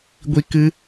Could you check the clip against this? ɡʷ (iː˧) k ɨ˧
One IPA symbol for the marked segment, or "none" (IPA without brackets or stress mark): i˧